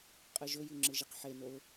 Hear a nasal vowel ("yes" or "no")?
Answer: no